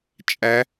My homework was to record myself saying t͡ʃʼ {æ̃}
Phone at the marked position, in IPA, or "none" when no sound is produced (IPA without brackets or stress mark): æ